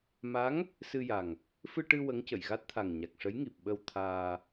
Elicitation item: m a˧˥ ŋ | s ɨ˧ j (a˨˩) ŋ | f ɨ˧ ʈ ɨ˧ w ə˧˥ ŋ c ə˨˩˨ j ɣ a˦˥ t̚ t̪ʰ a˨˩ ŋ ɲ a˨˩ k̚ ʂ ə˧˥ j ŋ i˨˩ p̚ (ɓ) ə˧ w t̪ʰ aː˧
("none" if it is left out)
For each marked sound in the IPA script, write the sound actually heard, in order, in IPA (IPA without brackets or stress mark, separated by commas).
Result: a˨˩, ɓ